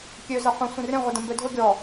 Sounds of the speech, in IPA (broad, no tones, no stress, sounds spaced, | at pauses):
kʲ ø z ɐ qʷ ĩ sʷ ĩ r ẽ ʁʷ ɪ d ɐ̃ m b ø dʱ ʊ ɡʲ ɔ